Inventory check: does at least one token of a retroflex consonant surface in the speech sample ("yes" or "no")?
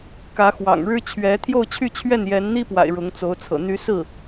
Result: yes